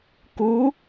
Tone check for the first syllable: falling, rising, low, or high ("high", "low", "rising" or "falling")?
rising